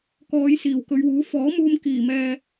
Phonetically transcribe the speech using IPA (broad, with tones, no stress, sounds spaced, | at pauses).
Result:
k ɔː˨˧ j s iː˨˩ w k ɵ˨˧ ɥ w uː˨˥ f ɔː˨˥ m uː˧ m k iː˨˩ m ɛː˧